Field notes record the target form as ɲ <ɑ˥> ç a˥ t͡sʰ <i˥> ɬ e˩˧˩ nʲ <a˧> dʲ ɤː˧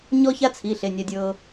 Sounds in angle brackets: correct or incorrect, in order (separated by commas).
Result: incorrect, incorrect, correct